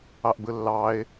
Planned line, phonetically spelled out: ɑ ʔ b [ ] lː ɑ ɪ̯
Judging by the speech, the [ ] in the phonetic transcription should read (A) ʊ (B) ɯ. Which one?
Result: B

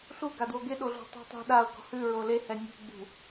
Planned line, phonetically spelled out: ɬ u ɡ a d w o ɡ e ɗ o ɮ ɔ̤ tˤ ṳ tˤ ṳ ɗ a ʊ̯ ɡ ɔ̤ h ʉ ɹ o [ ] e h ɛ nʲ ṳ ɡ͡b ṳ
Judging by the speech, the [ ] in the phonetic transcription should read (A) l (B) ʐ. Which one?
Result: A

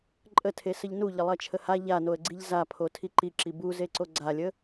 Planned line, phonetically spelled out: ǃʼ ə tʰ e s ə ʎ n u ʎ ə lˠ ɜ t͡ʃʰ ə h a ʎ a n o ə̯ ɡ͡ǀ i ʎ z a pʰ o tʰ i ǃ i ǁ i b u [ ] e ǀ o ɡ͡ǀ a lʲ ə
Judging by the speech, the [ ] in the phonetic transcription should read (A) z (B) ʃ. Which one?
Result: A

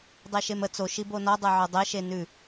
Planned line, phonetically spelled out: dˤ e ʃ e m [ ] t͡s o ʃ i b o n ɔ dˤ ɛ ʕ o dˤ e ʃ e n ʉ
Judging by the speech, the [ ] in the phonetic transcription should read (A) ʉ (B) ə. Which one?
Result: B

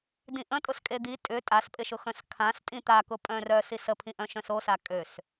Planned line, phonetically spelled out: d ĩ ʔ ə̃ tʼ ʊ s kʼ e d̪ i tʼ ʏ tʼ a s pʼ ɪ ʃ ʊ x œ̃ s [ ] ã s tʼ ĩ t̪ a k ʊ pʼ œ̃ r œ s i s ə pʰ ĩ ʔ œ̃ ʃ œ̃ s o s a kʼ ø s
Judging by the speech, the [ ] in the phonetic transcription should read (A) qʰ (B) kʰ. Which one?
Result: B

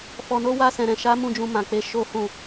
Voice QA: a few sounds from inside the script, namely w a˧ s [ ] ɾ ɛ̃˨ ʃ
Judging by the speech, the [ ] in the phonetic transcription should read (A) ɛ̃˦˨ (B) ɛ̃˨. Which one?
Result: B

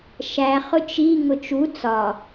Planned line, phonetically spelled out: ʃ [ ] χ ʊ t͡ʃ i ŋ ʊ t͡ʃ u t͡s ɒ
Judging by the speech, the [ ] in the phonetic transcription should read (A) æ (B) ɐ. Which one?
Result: A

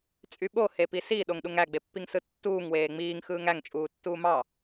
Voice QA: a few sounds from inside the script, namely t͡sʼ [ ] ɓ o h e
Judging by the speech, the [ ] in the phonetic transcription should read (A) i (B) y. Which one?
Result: B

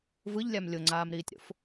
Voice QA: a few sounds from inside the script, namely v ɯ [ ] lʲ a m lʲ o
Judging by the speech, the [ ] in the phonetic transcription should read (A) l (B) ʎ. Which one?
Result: B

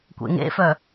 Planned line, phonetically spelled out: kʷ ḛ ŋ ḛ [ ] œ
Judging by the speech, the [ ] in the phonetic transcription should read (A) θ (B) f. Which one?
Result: B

